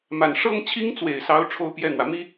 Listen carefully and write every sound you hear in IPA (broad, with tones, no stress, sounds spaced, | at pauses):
m a˨˩ n ʂ ɤ˥ ŋ t͡ɕʰ i˥ ŋ t͡s w e˨˩ ɪ̯ s ɑ˧˥ ʊ̯ ʈ͡ʂʰ o˥ ʊ̯ p j ɛ˥˩ n̪ w ä˩ m i˥